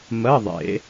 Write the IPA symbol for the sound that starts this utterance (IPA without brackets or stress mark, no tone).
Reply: m